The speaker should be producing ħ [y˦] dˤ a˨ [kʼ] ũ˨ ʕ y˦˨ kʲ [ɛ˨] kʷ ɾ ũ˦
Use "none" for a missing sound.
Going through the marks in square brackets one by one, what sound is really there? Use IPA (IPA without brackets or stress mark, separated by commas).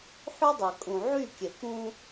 y˦, kʼ, ɛ˨